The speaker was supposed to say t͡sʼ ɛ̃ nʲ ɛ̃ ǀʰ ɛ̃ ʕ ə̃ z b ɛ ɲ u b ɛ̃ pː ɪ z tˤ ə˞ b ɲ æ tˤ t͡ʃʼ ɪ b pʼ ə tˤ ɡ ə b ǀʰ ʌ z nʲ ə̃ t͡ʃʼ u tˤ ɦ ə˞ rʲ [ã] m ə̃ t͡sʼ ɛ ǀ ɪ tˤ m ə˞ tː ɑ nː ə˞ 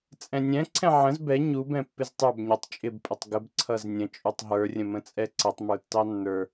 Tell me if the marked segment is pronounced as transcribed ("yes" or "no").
no